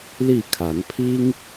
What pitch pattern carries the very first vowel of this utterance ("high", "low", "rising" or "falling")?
falling